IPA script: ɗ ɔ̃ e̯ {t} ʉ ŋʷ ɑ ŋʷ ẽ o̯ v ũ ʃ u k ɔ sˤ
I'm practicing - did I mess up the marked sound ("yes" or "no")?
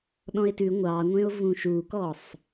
no